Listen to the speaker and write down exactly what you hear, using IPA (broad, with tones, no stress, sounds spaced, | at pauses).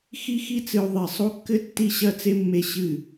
x i˥ x i˥ t͡s ɨ˧ u̯ ðˤ i˧˩ sˤ o˥ kː ɘ˥ tː i˥˧ ɕ ɐ˥˧ t͡s e˥ mː e˧ ɕ ɨ˧˩